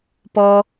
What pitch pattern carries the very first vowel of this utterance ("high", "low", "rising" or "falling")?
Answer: high